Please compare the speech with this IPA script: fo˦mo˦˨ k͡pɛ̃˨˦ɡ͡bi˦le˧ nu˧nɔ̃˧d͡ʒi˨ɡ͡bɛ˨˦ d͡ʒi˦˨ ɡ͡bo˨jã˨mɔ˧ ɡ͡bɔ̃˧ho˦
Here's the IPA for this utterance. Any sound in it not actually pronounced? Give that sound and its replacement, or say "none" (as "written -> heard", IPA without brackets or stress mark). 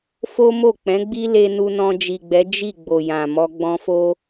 h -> f